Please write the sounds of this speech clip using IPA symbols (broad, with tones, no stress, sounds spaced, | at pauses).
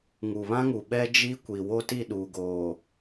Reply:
ŋ u˨ β ã˦ ŋ u˨ ɓ ɛ˦ d͡ʒ i˦ kʷ i˨ w o˦ t i˦˨ ɗ uː˨ ɡ oː˨